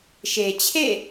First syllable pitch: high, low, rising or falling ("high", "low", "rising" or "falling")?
low